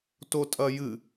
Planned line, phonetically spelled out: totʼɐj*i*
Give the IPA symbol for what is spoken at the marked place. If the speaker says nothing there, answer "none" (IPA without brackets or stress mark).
ɨ